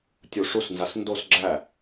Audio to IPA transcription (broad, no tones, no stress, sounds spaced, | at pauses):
tʲ u ʂ u s n z a s n d o s ɡ͡ǁ æ